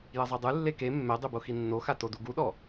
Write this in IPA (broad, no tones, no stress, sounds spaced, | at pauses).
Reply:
j ɐ zˤ ɛ dˤ ɨ lː e k e mː ɛ dˤ e b o x i nː o x a t o d u ɡ u ɗ ɔ